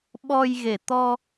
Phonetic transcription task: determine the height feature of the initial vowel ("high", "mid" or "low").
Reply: mid